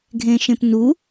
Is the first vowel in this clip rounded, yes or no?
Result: no